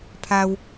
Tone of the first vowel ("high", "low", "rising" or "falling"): low